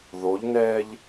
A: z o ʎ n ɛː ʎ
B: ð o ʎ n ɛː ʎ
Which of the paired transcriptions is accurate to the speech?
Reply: B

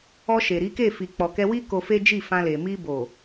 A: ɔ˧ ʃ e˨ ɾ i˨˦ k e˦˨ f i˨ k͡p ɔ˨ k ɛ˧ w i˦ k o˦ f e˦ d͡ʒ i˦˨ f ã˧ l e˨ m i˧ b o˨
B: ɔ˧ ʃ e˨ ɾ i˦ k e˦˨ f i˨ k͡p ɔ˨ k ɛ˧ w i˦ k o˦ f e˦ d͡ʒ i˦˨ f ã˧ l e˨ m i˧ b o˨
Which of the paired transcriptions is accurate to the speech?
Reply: A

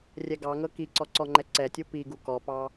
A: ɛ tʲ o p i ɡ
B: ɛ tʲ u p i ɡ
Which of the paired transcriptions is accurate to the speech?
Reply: B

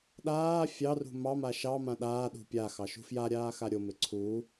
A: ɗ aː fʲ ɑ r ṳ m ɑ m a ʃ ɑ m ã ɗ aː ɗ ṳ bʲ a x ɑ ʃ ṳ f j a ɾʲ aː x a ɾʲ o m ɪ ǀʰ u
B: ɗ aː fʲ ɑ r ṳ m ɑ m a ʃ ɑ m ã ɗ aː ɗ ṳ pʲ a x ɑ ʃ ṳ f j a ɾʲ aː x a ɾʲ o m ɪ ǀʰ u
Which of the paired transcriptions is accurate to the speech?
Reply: B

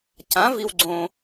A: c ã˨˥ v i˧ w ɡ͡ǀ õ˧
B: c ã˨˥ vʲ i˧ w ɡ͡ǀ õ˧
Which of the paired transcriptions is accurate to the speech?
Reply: A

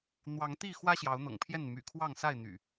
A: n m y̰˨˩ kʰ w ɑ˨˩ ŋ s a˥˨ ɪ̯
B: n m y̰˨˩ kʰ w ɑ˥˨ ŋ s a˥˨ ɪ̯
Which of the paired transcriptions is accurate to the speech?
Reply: B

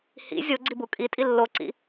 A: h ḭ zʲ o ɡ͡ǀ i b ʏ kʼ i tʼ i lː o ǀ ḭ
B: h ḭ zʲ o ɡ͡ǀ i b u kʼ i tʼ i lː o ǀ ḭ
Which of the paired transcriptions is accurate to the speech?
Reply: B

